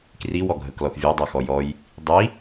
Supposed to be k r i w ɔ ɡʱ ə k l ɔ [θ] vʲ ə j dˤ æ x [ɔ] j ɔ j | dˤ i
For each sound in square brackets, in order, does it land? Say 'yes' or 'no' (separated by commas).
yes, yes